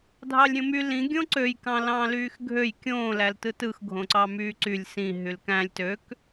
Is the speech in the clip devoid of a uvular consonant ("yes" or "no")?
yes